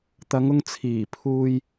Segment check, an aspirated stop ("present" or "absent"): present